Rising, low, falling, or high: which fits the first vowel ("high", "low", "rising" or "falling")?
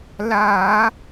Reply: low